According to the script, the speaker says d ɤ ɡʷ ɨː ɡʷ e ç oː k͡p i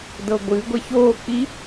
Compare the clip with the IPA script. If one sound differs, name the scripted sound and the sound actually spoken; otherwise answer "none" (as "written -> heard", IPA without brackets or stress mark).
none